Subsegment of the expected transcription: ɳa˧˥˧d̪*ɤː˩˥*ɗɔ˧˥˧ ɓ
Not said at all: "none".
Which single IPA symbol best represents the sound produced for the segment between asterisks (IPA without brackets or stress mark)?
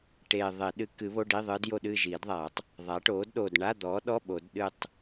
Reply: ɔː˩˥